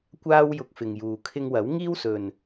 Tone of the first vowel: high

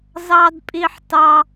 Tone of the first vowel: high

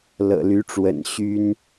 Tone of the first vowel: low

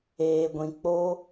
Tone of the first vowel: low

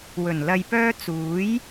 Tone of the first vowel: low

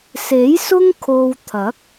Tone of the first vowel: rising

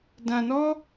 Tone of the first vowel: low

